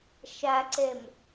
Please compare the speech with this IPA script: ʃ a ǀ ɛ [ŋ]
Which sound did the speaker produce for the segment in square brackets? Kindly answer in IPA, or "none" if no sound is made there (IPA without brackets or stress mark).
m